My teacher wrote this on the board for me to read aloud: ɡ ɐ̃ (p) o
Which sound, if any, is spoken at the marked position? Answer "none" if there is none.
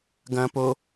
p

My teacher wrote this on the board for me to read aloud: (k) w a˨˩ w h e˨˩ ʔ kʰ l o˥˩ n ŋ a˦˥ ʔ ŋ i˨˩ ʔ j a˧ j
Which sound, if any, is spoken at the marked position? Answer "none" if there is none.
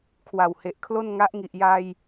kʰ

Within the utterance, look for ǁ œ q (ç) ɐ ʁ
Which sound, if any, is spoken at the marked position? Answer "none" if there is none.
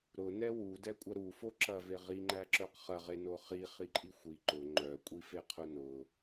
χ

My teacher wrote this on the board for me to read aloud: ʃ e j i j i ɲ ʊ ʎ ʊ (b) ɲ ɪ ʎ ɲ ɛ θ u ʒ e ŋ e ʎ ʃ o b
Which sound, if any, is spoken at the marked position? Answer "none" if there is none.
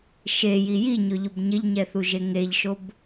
b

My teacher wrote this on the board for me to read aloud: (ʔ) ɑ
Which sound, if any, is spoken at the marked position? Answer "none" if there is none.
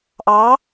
ʔ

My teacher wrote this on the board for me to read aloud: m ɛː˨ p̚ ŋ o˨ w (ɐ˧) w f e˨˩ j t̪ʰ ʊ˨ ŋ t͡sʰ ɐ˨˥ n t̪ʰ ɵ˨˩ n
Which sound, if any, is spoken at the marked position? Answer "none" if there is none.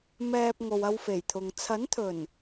ɐ˧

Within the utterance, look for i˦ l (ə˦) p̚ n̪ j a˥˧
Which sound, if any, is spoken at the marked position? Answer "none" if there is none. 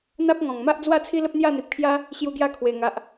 ə˦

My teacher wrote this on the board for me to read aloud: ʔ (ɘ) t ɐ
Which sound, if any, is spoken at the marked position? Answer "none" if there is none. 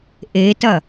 e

